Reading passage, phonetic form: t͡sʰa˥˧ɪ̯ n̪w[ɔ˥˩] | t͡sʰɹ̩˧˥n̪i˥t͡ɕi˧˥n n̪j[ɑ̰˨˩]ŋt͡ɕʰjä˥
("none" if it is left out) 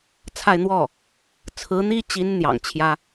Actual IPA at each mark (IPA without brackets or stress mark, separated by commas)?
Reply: ɔ˥˩, ɑ̰˨˩